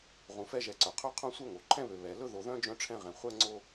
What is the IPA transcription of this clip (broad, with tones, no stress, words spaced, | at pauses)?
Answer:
ʁũ˨fɛ˦ʒɛ˨ǀœ˩ qʰɵ˦ qʰõ˥sʷœ˥ŋo˩ ǃʰɛ̃˥βø˨ βɛ˨ lɵ˦ðo˨ðœ̃˦ d͡ʒœ̃˥ʈ͡ʂʰɛ̃˥ʁɛ̃˨ χʷɛ˥ŋ͡ǀo˥